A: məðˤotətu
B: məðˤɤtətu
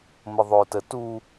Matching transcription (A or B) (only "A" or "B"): A